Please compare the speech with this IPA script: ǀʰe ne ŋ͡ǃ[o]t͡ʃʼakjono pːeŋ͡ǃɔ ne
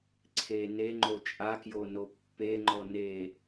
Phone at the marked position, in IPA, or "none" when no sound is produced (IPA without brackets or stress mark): o